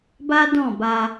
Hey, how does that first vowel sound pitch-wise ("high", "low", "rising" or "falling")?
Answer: high